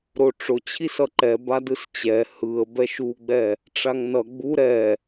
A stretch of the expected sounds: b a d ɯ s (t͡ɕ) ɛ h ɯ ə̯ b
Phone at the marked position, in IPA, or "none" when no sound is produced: t͡ɕ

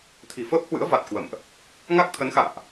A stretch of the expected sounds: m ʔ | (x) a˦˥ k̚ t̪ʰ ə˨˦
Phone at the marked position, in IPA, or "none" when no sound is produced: ŋ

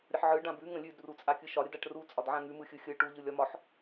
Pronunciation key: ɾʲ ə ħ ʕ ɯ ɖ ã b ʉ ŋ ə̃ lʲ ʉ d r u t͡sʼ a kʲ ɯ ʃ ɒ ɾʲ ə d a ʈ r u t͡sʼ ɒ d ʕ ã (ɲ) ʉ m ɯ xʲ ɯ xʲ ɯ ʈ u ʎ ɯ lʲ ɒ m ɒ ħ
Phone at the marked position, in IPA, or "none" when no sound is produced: ŋ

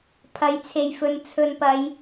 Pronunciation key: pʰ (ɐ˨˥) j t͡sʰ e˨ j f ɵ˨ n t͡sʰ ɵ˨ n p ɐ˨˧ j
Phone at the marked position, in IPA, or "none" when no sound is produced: ɐ˨˥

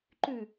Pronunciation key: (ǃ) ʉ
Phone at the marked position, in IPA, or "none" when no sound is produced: ǃ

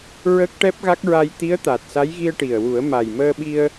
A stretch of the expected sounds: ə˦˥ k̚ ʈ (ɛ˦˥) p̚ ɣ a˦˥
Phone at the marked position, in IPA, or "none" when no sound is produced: ɛ˦˥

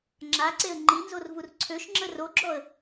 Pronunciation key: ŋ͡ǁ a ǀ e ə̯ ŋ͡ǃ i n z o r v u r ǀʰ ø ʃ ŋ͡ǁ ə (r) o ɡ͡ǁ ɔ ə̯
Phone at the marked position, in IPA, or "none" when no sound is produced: r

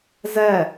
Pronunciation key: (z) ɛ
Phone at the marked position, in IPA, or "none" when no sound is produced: z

